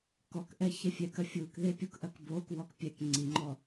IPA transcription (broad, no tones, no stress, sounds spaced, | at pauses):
k ɔ k ʔ ɛ ç ɛ fʲ ɛ k ɐ fʲ u k ð e pʲ u k ʔ ɐ k b o k w ɔ k pʲ ɛ k ŋ͡ǀ i ŋ͡ǃ ɔ